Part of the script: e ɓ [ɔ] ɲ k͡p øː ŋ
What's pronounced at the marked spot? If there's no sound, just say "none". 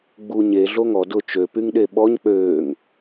ɔ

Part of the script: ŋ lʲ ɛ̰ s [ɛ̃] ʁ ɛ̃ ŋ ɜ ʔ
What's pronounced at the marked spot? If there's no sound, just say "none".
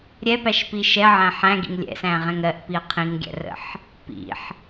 æ̃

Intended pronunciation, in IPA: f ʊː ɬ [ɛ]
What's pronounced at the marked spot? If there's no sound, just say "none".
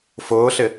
ɪ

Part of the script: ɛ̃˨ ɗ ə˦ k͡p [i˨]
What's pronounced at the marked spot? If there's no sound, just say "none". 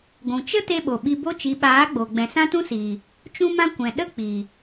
i˨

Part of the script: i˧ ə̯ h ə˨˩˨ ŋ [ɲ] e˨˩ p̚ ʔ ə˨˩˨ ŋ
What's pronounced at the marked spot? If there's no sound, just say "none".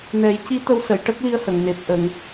n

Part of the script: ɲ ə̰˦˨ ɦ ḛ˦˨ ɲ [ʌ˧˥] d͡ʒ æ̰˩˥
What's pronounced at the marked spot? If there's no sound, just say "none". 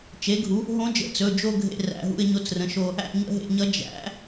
ʌ˧˥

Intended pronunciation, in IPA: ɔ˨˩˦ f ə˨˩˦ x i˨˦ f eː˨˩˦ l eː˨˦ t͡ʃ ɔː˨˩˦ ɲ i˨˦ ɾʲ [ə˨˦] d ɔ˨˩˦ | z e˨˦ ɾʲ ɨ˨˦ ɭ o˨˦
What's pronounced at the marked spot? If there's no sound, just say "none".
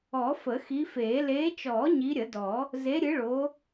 ə˨˩˦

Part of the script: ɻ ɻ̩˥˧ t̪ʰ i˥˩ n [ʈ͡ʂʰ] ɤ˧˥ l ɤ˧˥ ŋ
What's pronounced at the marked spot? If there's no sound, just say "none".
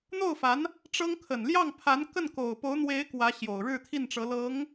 ʈ͡ʂ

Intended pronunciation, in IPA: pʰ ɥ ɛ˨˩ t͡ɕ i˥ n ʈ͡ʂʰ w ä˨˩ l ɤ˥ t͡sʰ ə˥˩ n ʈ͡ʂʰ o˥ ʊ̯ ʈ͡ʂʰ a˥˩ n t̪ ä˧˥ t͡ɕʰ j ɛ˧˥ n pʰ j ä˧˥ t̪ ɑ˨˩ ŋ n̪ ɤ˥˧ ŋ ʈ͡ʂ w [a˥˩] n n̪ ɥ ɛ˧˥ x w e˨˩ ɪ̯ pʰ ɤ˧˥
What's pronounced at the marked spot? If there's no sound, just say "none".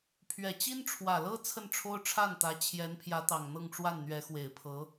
a˥˩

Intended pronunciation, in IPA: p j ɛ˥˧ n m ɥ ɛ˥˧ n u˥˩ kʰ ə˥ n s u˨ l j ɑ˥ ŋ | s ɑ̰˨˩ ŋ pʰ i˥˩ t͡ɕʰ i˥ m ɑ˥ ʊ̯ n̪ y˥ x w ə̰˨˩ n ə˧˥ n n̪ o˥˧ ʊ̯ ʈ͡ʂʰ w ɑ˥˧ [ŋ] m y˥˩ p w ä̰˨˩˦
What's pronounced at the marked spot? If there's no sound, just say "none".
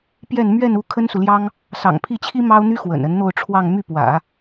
ŋ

